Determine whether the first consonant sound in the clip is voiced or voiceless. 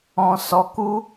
voiceless